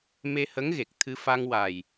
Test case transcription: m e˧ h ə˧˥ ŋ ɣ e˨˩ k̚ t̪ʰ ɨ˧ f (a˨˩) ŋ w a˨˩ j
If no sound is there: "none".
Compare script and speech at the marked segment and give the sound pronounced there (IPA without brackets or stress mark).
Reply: a˧